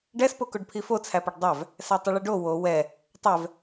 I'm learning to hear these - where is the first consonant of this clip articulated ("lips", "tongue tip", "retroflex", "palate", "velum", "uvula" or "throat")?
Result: retroflex